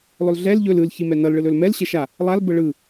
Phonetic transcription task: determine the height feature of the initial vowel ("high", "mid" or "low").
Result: mid